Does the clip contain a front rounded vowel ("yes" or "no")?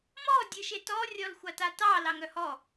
yes